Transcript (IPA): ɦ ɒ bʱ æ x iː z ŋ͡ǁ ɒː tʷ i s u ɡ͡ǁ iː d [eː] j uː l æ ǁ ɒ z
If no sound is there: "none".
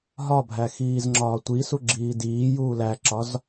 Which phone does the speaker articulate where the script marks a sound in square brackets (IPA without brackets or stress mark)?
iː